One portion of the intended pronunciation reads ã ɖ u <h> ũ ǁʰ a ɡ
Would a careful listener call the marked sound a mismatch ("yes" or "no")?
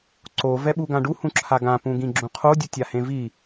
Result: no